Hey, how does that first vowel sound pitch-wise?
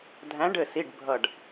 rising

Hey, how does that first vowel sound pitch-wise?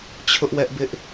high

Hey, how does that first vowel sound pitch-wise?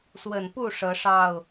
low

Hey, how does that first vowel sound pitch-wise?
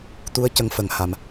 rising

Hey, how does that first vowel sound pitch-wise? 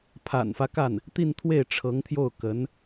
low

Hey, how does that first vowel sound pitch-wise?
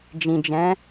low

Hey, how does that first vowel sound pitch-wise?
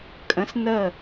rising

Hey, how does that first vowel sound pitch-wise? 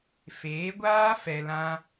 rising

